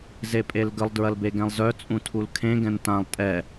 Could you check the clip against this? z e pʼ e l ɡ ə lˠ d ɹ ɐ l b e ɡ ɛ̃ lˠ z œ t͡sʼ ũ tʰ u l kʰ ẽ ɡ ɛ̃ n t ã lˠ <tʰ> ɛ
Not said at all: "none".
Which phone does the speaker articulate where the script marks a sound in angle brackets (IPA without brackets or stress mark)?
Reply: tʼ